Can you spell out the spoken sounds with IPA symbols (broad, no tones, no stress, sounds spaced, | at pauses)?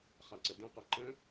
χ a ǀ ə d ẽ q ɜ ǃ ə̃